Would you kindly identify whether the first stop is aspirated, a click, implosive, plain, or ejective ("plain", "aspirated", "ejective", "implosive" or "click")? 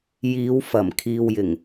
aspirated